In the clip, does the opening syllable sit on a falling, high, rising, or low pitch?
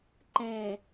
low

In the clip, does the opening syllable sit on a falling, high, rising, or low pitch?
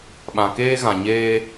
low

